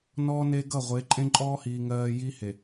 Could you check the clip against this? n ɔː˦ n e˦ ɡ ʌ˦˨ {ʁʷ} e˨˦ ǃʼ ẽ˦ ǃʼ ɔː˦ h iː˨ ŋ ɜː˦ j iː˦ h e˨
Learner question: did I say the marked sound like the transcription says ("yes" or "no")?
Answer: yes